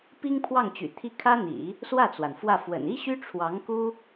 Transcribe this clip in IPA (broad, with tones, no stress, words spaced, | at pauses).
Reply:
pi˥ŋpʰwɑ˥˩ŋt͡ɕy̰˨˩t̪ʰi˥˩ kʰä˥n̪ḭ˨˩˦ | swä˥˩t͡swa˩n fwä˥˩ fwə̰˨˩ni˥ ɕy˥ʈ͡ʂʰwɑ˧˥ŋ ku˥